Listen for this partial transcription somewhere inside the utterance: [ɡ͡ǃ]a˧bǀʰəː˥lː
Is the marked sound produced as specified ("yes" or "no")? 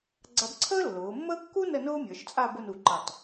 no